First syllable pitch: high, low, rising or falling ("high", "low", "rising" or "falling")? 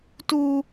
high